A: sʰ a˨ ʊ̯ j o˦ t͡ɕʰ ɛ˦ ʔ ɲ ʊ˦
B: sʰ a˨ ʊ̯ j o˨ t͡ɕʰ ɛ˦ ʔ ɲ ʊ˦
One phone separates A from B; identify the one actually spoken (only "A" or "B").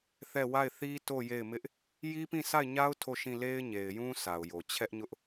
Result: B